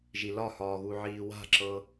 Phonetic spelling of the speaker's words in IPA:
ʒilɒhɒːɣu ʕiːwa̤ǁɤ

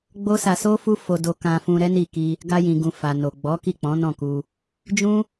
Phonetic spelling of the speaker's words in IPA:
ɡ͡bo˦sa˧so˦fu˦ fo˧do˧kã˧fũ˧ ɾɛ˦ni˦˨ ki˧ | ɡa˧jĩ˨ɡũ˨ fa˨no˨ ɡ͡bɔ˨˦ki˦˨k͡pɔ̃˨˦ nɔ̃˦˨ku˧ | d͡ʒũ˦

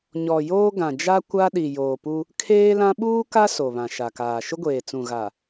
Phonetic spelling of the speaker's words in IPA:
ɲɔ˨joː˦ ɡã˨d͡ʒa˦ kʷa˦ɗi˨ joː˨pu˦ | kʰeː˦lã˦ ɓuː˦ka˦ so˨βã˨ ʃa˨kaː˨ ʃʊ˦ɡʷeː˨t͡sũ˨ɣa˨

